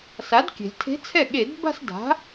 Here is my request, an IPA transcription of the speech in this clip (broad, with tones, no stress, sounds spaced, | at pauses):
s a˩˥ d kʲ e̤˩ lʲ tʰ e̤˧˥ t͡sʰ ɛ˥˩ ɠ e˧˩˧ d b a̤˥˧ s d a̤˩˥